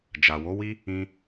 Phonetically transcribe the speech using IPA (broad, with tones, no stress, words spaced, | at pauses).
d͡ʒa˨wo˨˦wi˦ | ĩ˧